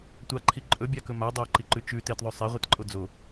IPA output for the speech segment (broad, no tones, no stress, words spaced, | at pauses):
tʷaǃʰi ǃʼɵbʲakɵ ma dˤɐo̯ǃiǃʉ t͡ʃʉ tetðˤʉ sˤeʁʷitǃʼo d͡zo